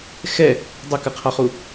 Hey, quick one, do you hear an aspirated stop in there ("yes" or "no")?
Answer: yes